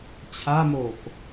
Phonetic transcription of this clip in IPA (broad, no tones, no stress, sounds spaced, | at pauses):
t͡ɕʰ a m oː k